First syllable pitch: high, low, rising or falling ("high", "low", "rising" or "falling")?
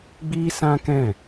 high